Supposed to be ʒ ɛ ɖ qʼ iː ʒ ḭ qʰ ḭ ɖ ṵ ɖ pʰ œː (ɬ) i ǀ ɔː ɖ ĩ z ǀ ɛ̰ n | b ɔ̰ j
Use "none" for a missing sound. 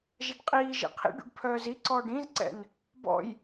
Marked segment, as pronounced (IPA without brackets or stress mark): z